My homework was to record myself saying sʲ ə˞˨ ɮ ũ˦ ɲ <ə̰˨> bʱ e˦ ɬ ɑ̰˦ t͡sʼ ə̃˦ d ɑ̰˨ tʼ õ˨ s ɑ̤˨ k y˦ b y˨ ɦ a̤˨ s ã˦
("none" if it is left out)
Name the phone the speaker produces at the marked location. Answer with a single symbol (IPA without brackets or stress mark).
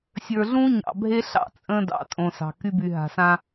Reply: ɑ̰˨